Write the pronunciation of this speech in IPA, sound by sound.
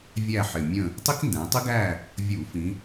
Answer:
vʲ æ˦˨ ħ ɪ˨˩ mʲ ə̃˦˨ | tˤ i˦ k n d æ̃˩˧ tˤ ɪ˦ ɡ æ˦˨ | vʲ u˧˩˧ f ĩ˩˧

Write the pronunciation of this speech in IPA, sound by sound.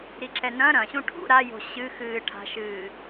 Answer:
ɾ i ǁ ɛ n ɐ̃ ɾ ɐ̃ ɕ ũ ʈʰ ṵ ɾ a j o̤ ɕ ɨ x ɨː ʈʰ a̤ ʃ ɨː

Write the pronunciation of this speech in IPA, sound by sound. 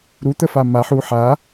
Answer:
ɾ u t̪ ə f a m a ħ u ħ a

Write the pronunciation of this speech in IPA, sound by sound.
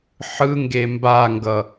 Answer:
ħ ɯ ŋ ɡ e m b a ŋ ɡ ʌ

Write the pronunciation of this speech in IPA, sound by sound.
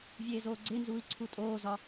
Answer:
vʲ eː z oː ɡ͡ǀ e n z uː i̯ ǀʰ u tʼ oː z ɒ

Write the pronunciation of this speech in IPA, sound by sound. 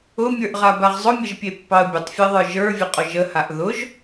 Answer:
ʊ mʲ ə˞ ʔ ʁ a b a ʁ zˤ ʊ mʲ ə ʒ pʲ e pː ɑ ə̯ bʲ ə tˤ fʲ e ðˤ ə˞ ʒ ə˞ vʲ ə qʼ ʊ ʒ ə h a ʔ ð ʊ ʒ

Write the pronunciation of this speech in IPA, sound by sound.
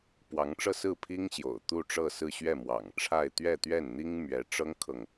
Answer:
p w ɑ˧˥ ŋ ʈ͡ʂ ɤ˥˧ s ɹ̩˥˩ pʰ i˥ ŋ ɕ j o̰˨˩ ʊ̯ t̪ u˥˧ ʈ͡ʂ ɤ˥˧ s ɹ̩˥˧ ɕ ɥ ɛ˥˩ m w ɑ̰˨˩ ŋ ʈ͡ʂʰ a˥˧ ɪ̯ t̪ ɥ ɛ˥˧ t̪ ɥ ɛ˥˩ n n̪ i˥ ŋ m ɥ ɛ˧˥ ʈ͡ʂ ɤ˥ ŋ kʰ ɤ˨ ŋ

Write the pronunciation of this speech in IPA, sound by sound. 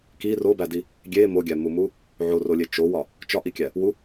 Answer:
k i r o b æ d i | ɡʲ e m o ɡʲ æ m u m u | ʕ o r o lʲ e t͡ʃ o w ɒ | t͡ʃ ɒ ʔ i kʲ æ | w u

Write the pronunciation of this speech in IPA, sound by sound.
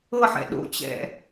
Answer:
ɤ ħ ɛ̰ ɗ o̰ t͡ɕ ɛ̰

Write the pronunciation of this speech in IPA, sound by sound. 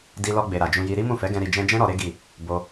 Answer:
d i˧ l ɔ˧ ɡ͡b e˨ ɾ a˨ d͡ʒ ũ˧ j i˧ ɾ i˦ m ũ˦˨ f ɛ˨˦ ɡ ɛ̃˧ ɾ i˨ d͡ʒ ɛ̃˧ d͡ʒ ɛ̃˦ ɾ ɔ˧ ɾ e˦ ɡ i˦˨ | b o˧

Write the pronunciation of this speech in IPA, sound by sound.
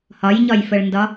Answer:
h ɒ j ɲ ɒ j f ə ɭ n d ɒ

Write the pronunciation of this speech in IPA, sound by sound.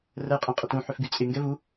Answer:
r ə j qʼ ẽ qʼ ə t ũ ħ ʏ f ɡ y t͡sʼ ɪ ŋ ɡ ɛ v u

